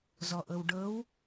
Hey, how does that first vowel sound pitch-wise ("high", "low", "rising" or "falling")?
low